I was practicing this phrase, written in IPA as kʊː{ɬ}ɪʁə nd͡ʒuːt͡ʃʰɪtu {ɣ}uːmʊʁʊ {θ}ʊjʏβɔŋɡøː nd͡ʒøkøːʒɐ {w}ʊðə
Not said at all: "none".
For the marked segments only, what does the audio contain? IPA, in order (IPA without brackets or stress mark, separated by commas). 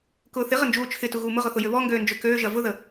θ, ɣ, θ, v